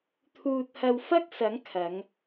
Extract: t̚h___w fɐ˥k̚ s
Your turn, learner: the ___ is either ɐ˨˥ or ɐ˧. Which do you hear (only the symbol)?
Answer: ɐ˧